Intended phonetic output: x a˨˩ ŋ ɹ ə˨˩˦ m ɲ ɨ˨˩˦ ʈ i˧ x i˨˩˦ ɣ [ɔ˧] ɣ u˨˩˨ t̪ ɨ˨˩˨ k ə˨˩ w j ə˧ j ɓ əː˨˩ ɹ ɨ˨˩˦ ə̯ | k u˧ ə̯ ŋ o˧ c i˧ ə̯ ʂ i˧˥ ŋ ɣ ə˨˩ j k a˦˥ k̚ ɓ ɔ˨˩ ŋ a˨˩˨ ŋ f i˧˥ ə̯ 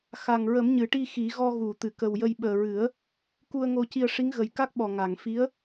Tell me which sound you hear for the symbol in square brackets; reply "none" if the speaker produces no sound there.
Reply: ɔ˧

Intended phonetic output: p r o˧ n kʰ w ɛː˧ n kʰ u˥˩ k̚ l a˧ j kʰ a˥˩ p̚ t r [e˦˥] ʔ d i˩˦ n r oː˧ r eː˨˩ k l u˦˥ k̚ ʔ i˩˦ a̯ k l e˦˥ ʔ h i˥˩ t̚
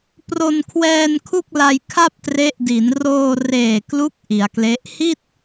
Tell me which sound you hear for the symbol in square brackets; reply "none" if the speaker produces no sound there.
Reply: e˦˥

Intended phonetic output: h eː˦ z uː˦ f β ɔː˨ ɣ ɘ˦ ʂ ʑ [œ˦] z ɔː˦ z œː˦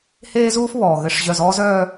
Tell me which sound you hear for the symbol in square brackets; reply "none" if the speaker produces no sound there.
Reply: œ˦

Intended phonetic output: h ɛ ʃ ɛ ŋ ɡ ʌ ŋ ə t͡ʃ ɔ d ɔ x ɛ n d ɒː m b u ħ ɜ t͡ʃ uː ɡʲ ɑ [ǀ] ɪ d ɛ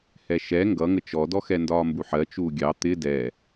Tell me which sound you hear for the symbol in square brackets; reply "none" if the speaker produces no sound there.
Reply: t̪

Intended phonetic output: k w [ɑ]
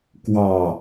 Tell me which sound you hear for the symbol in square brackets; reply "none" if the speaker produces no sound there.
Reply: ɑ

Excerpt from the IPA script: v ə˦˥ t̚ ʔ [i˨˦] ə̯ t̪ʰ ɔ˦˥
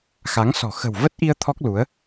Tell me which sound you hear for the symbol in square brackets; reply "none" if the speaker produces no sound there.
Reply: i˧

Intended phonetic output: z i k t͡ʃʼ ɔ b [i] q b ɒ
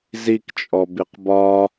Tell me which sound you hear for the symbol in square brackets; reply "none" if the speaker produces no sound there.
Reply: i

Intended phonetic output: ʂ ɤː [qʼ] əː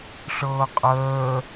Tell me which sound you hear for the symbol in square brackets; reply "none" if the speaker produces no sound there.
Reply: qʼ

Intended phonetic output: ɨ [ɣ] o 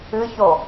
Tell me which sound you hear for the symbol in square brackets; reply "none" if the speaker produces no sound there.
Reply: ç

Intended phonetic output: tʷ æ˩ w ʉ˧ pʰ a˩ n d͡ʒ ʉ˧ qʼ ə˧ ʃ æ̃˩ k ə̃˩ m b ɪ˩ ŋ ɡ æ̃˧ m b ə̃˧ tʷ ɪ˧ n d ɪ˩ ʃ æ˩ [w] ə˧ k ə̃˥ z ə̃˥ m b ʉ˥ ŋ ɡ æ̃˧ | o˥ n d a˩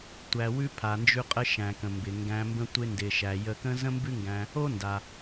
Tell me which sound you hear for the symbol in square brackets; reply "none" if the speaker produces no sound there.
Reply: j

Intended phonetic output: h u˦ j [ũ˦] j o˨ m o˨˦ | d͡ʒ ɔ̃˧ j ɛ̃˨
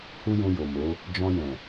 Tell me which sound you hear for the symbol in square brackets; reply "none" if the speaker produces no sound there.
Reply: ũ˧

